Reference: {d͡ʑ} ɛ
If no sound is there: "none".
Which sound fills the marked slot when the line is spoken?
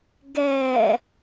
ɡ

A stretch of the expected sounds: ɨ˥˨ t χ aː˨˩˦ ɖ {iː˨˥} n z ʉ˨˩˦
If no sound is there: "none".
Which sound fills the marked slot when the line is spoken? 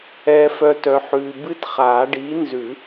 iː˨˥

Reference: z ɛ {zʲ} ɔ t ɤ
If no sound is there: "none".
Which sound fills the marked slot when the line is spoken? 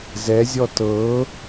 zʲ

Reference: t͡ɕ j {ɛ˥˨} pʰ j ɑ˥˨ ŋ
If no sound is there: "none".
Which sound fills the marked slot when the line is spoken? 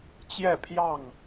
ɛ˥˨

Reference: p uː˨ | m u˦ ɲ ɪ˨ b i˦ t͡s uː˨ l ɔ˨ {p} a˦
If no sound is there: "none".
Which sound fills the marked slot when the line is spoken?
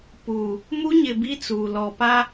p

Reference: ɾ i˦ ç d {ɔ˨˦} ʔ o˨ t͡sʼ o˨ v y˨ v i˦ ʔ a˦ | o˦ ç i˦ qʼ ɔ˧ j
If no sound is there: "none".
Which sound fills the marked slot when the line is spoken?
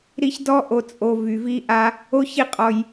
ɔ˦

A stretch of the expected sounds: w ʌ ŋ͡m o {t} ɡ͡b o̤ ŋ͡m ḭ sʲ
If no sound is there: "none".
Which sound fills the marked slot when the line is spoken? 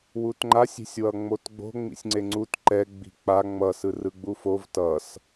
t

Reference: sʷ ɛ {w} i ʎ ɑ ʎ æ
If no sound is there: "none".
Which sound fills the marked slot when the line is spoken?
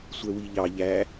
w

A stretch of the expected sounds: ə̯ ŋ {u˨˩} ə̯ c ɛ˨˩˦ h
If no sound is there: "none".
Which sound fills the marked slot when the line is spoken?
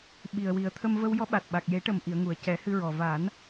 u˨˩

